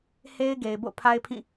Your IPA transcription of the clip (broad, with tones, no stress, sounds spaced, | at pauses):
h e˦ ɪ̯ ɡ e˨ ɪ̯ b o̰˦˨ pʰ a˦ ɪ̯ pʰ ĩ˦˨